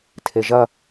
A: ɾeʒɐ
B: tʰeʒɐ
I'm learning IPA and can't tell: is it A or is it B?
B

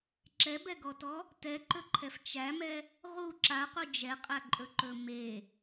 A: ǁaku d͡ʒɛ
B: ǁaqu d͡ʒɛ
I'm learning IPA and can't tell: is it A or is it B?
B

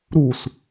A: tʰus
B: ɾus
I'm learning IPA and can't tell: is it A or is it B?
B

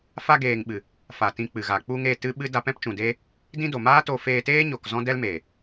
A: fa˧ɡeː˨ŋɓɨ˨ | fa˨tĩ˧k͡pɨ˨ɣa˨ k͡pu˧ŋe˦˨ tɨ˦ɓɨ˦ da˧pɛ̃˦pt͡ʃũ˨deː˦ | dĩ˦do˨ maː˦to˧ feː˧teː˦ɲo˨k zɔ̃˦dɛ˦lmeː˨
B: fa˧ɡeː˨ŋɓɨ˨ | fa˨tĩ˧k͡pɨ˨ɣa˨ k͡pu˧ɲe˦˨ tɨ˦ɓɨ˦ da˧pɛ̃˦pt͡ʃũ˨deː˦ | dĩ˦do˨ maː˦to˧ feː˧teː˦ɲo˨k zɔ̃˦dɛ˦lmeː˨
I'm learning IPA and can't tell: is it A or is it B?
A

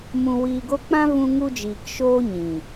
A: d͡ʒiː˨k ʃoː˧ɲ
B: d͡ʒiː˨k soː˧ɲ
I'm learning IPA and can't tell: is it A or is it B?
A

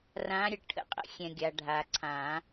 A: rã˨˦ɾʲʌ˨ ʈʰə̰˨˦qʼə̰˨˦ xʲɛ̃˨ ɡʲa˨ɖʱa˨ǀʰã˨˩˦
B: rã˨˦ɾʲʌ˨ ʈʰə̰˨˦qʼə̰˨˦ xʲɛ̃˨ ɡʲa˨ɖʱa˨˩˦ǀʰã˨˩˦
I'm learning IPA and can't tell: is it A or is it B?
A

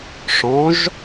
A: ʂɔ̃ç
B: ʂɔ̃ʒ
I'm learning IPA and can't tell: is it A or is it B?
B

